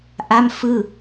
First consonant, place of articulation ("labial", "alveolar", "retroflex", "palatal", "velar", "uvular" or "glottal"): glottal